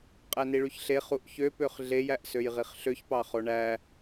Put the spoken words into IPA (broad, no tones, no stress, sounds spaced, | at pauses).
qʼ æ n i ɭ y ç ɬ e χ u ʔ ç ø p ø χ ɮ e j æ ʔ s ø j ʁ i χ ɬ ø ç p ɑ χ o ɳ æ